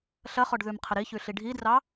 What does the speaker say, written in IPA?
ɬ ɐ χ ɔ ɖ ð ʉ m qʰ ə ɾ i ç ʉ ɬ i ɖʱ i d r ɑ

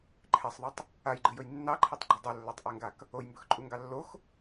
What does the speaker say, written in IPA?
ǃʰ ɛ sˤ ðˤ ɵ tˤ | a j ɡ͡ǃ ɨ j ɵ j nː ɑ ǃʰ ɛ tˤ ɡ͡ǃ ɵ dˤ ɨ lː a tˤ ʔ ɛ ŋ ɡ a k | o j m b ɵ x ǃʼ u ŋ ɡ ɑ lː o x

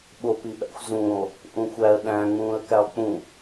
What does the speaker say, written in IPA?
ɓ o p i ɓ æ̰ xʷ z ũː lˠ | ʔ ũ xʷ æ ə̯ ɗ æ̃ ŋ͡m ũː ə̯ k æ lˠ k͡p ũ

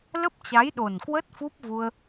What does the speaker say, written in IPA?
l ə˦˥ p̚ t͡ɕ a˨˦ j ɗ o˨˩ n k w ə˦˥ t̚ f u˦˥ p̚ v u˧ ə̯

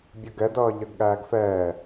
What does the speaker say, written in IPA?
bʲ ʌ ɡ ɛ d ʌː ʎ ɜ ɡ ɠ æː ɡ f ɛː

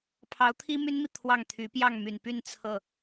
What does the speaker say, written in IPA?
pʰ ɑ˧˥ ʊ̯ t̪ʰ i˥ m y˥ n m i˨ t̪ʰ w ɑ˥˩ ŋ t̪ʰ y˧˥ p j ɑ˥˩ ŋ m y˨˩ n p y˥˧ n t͡sʰ ɤ˥˩

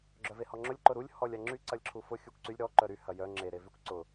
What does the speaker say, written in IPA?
ɡ͡ǁ œ v e h ɔ ŋ͡ǁ ʊ lʲ ǃ ʊ ɾ u lʲ h ɔ lʲ a ŋ͡ǁ y ǀ ɐ lʲ ǁʰ u f ʊ xʲ u kʷ ǀ y lʲ ɾ ɔ ǃ œ ɾ y h ɐ j œ ŋ͡ǁ e ɾ e v y kʷ ǀ ʊ

